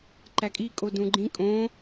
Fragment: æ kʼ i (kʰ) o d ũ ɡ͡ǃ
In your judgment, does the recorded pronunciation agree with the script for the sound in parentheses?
no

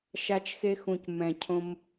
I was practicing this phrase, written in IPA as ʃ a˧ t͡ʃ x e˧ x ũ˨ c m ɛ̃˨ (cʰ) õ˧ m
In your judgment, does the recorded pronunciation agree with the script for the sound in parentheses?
yes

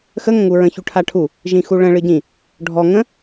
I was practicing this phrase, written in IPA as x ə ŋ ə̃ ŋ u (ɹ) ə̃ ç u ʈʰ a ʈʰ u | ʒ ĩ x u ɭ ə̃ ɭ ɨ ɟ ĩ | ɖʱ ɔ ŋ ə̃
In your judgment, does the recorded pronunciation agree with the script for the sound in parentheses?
yes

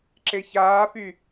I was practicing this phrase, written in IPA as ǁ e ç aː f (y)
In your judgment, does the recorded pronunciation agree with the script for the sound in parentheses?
yes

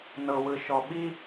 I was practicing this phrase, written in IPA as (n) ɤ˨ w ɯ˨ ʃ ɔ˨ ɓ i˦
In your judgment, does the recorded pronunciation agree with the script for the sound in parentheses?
yes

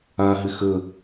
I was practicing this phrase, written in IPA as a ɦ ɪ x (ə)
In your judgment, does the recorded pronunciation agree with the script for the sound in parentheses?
yes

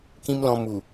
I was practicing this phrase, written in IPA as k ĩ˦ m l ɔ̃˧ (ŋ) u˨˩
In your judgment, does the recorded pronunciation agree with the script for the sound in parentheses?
no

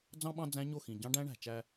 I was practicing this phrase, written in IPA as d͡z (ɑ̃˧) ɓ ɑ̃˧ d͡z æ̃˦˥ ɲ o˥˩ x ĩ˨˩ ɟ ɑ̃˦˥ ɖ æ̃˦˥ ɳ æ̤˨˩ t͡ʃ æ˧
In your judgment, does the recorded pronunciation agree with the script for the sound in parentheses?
yes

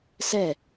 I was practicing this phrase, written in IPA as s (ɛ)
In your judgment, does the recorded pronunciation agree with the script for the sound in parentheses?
yes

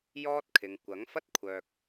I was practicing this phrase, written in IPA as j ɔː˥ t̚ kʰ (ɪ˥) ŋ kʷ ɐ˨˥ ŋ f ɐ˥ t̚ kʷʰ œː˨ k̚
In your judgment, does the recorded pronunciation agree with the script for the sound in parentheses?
no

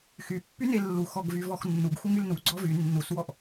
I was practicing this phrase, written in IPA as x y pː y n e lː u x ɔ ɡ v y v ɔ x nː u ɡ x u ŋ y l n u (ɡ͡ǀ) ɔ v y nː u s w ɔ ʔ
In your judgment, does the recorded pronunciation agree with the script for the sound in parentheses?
yes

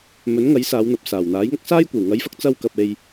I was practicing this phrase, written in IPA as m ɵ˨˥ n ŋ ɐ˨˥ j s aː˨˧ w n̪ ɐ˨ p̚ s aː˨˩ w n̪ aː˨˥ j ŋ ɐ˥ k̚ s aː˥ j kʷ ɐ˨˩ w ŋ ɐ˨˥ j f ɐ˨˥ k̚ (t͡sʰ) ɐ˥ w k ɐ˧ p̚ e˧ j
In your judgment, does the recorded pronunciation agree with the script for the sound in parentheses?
no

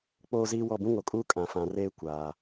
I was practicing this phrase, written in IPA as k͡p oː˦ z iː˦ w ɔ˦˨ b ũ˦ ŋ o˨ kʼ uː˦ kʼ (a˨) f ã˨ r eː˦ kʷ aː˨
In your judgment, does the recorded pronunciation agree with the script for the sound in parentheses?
no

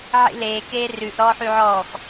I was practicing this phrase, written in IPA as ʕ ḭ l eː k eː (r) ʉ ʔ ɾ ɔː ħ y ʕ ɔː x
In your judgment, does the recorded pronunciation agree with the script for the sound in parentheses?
yes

